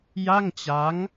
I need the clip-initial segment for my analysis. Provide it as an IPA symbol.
j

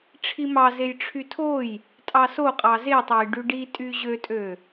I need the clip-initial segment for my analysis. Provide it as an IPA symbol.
ʈ͡ʂʰ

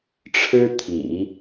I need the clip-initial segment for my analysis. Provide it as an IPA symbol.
ʈ͡ʂʰ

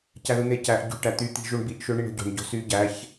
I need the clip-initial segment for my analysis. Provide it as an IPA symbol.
c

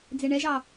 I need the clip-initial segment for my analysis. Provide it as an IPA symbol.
d͡z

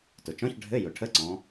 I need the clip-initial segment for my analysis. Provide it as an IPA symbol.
t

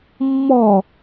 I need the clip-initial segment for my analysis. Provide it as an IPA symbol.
mː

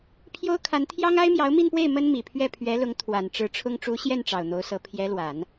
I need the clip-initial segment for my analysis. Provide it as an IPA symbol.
pʰ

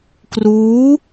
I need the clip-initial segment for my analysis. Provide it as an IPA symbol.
k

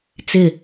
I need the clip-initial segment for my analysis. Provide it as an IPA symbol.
t͡s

